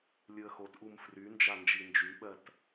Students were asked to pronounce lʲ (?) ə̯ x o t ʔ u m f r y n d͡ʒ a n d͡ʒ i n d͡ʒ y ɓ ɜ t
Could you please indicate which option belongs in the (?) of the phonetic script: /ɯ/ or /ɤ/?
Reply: ɯ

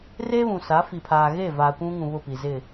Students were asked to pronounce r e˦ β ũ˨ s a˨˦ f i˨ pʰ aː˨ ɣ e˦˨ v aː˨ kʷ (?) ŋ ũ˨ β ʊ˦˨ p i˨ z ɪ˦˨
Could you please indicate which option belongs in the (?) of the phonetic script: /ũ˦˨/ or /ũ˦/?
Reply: ũ˦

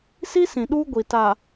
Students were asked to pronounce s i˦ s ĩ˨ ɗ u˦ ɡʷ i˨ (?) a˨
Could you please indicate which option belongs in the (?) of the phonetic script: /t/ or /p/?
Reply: t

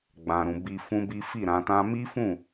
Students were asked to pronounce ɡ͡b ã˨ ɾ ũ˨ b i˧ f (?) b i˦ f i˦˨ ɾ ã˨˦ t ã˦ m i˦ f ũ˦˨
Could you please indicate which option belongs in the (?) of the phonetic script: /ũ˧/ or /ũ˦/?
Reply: ũ˦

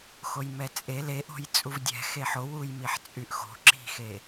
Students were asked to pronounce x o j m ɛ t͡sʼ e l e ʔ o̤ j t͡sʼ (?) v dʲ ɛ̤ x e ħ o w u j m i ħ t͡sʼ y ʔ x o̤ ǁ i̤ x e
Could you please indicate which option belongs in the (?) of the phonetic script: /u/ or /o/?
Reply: u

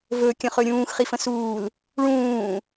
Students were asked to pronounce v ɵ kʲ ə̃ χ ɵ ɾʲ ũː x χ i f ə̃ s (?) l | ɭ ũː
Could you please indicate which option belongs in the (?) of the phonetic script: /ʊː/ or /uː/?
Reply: uː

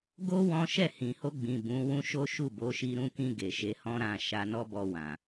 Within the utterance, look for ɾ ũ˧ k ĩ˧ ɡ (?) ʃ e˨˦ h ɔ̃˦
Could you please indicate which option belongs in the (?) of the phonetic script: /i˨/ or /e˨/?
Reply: e˨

